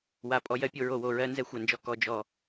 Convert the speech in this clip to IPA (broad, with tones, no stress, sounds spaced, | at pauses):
w a˨ pʼ ɔ˧ j ɜ˧ pʲ o˧ ɹ o˨ w o˨ ɹ ɜ˦ n z ɛ˨ xʷ a˨ n d͡ʒ ɔ˧ k ɔ˨ d͡ʒ ɔ˨